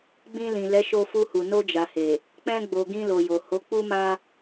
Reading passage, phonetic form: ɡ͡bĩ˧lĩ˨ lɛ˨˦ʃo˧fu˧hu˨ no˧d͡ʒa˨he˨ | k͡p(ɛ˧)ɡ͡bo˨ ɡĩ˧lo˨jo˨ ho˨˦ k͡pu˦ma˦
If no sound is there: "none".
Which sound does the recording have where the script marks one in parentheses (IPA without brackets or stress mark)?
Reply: ɛ̃˧